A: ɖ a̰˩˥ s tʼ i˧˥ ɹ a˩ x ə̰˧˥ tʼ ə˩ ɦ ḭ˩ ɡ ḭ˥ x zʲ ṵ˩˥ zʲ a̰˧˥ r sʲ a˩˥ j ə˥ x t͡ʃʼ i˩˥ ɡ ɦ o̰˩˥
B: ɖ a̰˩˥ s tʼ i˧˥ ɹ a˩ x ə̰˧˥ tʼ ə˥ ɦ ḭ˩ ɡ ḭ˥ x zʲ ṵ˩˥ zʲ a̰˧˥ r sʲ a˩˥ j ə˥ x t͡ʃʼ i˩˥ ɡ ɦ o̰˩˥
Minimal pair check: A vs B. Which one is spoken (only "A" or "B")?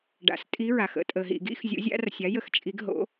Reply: A